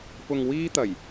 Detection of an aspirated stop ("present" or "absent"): absent